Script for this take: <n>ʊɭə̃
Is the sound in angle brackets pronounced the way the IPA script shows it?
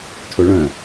no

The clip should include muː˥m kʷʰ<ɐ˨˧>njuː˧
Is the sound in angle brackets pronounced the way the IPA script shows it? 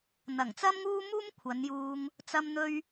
yes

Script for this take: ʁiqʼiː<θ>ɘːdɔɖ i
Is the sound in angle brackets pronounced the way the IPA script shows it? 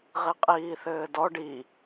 yes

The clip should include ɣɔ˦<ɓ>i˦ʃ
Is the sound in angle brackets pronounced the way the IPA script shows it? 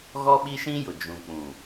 yes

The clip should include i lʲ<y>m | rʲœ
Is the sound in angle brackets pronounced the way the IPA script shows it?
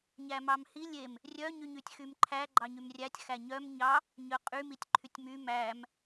no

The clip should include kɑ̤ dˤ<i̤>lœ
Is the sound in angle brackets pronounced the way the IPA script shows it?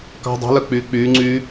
yes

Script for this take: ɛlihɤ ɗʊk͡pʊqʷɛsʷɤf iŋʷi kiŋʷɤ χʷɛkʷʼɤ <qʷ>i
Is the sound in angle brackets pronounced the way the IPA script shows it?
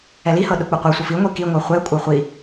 no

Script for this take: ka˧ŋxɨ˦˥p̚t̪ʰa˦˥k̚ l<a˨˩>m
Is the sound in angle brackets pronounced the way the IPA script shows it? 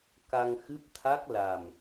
yes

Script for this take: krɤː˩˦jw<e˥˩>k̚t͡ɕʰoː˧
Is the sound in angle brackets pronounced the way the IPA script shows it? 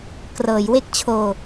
yes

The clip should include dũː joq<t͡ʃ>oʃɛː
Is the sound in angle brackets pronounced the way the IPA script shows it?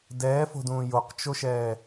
yes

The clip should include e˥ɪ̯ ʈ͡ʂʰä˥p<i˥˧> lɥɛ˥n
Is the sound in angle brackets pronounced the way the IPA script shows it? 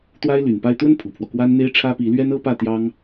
no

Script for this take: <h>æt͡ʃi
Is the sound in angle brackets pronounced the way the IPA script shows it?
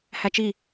yes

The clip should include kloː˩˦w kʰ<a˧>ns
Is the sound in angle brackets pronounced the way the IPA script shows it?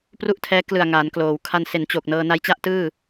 yes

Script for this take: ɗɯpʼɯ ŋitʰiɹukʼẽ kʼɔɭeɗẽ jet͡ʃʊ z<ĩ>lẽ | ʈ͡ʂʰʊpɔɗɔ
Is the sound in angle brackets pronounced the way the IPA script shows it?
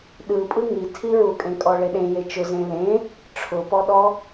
no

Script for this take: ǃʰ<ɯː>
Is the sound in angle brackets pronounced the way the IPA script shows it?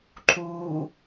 no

